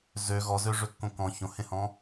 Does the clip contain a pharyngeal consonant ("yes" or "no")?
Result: no